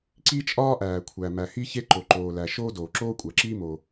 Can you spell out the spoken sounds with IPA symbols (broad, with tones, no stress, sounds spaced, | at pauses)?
ǀ i˥ t͡ʃʼ ɒː˥ ʔ æː˩ kʷʰ æ˩ m æ˩ h i˥ ç e˥ ǃ o˩ ǃ oː˩ l æ˩ ʃ oː˥ d oː˩ ǁ oː˥ kʷʼ æ˩ ǁ iː˥ m o˩